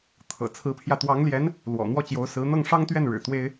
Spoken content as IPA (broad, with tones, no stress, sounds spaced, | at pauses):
t̪ʰ ɤ̰˨˩ t͡sʰ ɹ̩˧˥ pʰ j ä˧ t̪ w ɑ˧˥ ŋ l j ɛ˧˥ n | l w ɔ̰˨˩ n̪ w ɔ˥˩ t͡ɕ j o˧˥ ʊ̯ s ɹ̩˧˥ n̪ ɤ˥˩ ŋ ʂ ɑ˥ ŋ t̪ ɥ ɛ˥˩ n ɻ ɻ̩˨˩ t̪ w e˥ ɪ̯